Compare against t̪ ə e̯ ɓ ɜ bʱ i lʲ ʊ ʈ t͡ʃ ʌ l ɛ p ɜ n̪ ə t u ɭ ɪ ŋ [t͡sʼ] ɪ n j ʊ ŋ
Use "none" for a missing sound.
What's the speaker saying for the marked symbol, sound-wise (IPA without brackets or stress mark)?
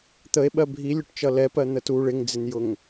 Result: d͡z